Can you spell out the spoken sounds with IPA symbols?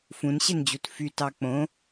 f ũ n ɕ e n d͡ʑ u t f y t ɑ k͡p õ

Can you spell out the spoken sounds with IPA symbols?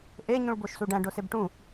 ʔ e ɲ ũ ɭ b o ʃ s u ɖ æ̃ ɖ o s e b ʈ ũ

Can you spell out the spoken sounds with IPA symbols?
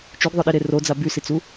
t͡ʃ y ɡ ðˤ œ ɗ i ɾ e r o d͡z a b y s i t͡s u

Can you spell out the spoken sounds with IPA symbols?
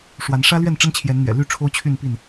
ʂ w a˨˦ n ʂ ä˦ l ɥ ɛ˥˨ n ʈ͡ʂ ə˦ n t͡ɕʰ j ɛ˨˦ n n̪ ɥ ɛ̰˨˩ l y˥˨ ʈ͡ʂʰ o˦ ʊ̯ t͡ɕʰ y˥˨ n p i˥˨ n

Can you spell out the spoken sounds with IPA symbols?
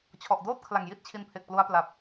t͡ɕʰ ɔ˨˩ ʔ d oː˥˩ t̚ kʰ l a˨˩ ŋ j i˥˩ t̚ t͡ɕʰ i˧ n pʰ e˨˩ k̚ p l u˧ a̯ p l a˨˩ p̚

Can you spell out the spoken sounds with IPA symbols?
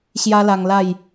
ɕ j a˦ l a˧ ŋ l a˥˧ j

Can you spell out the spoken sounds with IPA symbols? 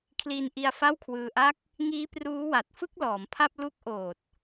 kʰ l iː˧ n ʔ i˧ a̯ f a˥˩ w kʰ w ɯː˧ ʔ a˥˩ k̚ | ŋ iː˦˥ p r uː˦˥ w a˨˩ t̚ f ɯ˥˩ k̚ l ɔː˩˦ m pʰ a˥˩ p̚ l u˦˥ k̚ ʔ oː˨˩ t̚

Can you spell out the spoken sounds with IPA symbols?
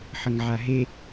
ħ ə ŋ ʕ a ɦ e

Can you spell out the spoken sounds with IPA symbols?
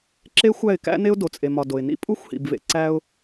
ǁ e˦ xʷ æ˦˨ ɪ̯ k æ̰˦ n e˦ ʊ̯ d o˨ t͡sʼ e˨ m ɒ˨ d o˨ ɪ̯ n ḭ˦ pʼ u˦ xʷ h ḭ˨ b v ḛ˨ ǀ æ˦ ʊ̯

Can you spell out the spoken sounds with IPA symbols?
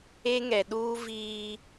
e˦ ŋ ɛ˨ ɗ uː˦ v iː˦

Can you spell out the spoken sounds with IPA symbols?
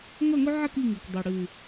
ŋ ɐ˥˨ ŋ ɵ˦ ʕ ɐ˥˨ k i˥˨ ŋ ʉ˨˩ k dˤ ʉ˨˩ ɽ ʉ˨˩

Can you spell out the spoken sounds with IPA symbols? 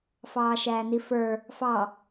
f ɑː ʃ æː n i f ə˞ | f ɑ

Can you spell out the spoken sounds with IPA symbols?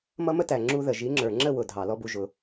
m ʌ˦ m ə˦ t æ˨ ŋ͡ǁ u˧ ð ə˨ ʒ i˨˦ ŋ͡ǁ ə˞˨ ŋ͡ǁ ə˦˨ w ʊ˨ dʱ ɑ˨ l ɔ˧ b u˨ ʒ ʊ˨

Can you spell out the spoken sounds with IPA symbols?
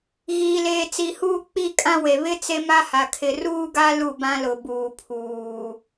ɣ iː˨ l eː˨ t͡s i˨ h uː˦ k͡p i˦˨ kʼ ã˦ w e˨ β ɪ˦ t͡s e˦ m a˦ h a˨ kʰ ɪ˨ r uː˦ ɡ a˦ l u˦˨ b ã˦ l ʊ˨ b uː˨ pʰ uː˨

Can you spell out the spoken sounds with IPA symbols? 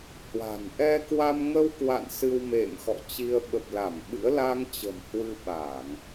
h w a̤˨˩ n ʔ ɛ˧ k w a˧ m ŋ ə˧ w k w a̰˧˨ n s ɨ˧ w m ḛ˧˨ m x ɔ̰˧˨ t͡ɕ i˧ ə̯ ɓ ə˨˩ p̚ l a˧˩ m ɓ ɨ̰˧˥ ə̯ l a˧ ŋ t͡ɕ ə̤˨˩ m h w ɨ˧ ɓ a˧˩˨ ŋ

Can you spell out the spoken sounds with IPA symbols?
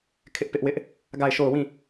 kʰ ɪ˦ ʔ p ɪ˦ ʔ w ɪ˦ ʔ | ɡ a˦˨ ɪ̯ ʃ o˦˨ ʊ̯ w ĩ˦˨

